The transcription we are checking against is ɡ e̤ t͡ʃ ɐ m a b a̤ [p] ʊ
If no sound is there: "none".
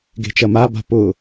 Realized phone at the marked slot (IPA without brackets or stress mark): p